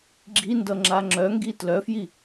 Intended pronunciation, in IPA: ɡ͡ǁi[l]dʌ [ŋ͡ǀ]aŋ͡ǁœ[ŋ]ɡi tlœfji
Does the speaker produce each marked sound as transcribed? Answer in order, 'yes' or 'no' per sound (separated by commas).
no, no, yes